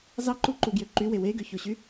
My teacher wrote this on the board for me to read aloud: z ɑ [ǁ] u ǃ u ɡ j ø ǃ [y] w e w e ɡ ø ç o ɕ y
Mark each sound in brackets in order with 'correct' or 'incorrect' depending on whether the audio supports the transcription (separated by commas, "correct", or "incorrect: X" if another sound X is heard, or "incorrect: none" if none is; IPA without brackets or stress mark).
incorrect: ǃ, correct